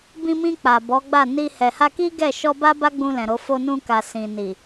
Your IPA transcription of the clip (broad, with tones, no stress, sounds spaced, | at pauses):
b ĩ˧ m ĩ˧ k͡p a˨ b ɔ˨˦ ɡ͡b a˦˨ n i˧ h ɛ˨ h a˧ k i˦ ɡ ɛ˦˨ ʃ ɔ˧ b a˦ b a˦ ɡ͡b ũ˧ l ɛ̃˨ ɾ o˨˦ f o˧ n ũ˧ k a˨ s ĩ˨ n i˨